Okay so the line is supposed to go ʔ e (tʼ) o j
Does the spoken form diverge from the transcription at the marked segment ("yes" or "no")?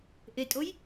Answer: no